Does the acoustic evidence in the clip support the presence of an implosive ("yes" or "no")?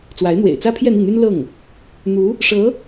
no